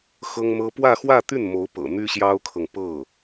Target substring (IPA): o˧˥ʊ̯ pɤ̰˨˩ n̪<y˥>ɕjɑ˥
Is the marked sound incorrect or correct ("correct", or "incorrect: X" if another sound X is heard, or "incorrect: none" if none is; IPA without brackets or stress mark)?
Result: correct